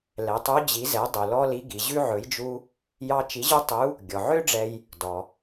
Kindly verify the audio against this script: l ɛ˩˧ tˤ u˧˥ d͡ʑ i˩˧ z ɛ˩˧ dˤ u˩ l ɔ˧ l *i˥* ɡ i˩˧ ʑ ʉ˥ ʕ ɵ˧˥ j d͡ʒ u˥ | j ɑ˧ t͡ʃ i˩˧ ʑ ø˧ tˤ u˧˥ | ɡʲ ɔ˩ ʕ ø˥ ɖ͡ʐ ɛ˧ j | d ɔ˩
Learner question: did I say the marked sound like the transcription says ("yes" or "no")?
no